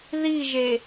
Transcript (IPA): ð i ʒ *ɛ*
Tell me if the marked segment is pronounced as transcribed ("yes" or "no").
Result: no